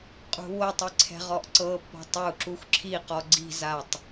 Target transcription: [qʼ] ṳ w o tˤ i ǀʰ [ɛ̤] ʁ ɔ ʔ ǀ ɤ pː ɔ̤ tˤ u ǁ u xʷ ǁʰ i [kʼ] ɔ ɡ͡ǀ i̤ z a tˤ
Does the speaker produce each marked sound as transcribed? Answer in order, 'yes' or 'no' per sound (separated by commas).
yes, yes, no